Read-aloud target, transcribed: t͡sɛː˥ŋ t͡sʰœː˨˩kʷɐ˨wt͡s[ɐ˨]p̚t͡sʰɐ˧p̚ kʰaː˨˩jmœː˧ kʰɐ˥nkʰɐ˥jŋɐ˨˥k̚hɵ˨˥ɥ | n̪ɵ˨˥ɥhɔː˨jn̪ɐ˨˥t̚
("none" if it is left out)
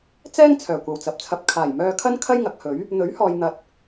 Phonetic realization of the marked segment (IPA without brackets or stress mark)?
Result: ɐ˨